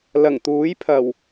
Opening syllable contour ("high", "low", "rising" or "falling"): low